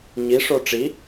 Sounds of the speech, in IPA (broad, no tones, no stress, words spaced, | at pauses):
ɲiʂo ʈ͡ʂi